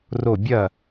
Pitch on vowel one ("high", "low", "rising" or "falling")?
falling